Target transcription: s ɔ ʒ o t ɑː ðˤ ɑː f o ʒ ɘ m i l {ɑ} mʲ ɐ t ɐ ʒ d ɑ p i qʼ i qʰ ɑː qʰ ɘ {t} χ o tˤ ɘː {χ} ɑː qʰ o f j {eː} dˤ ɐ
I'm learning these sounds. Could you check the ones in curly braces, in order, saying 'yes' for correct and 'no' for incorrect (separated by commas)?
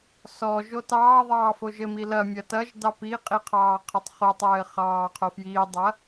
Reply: no, no, yes, no